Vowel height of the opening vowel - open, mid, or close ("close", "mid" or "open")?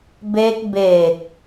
mid